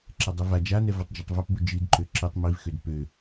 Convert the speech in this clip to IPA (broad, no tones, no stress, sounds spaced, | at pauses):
ǁ ɛ dˤ ø v a d͡ʒ a n ɛ v ɜ tˤ d͡ʒ ɜ tˤ v a p b u d͡ʒ i d ǃ ø ǁ i tˤ m i v x ø d p ø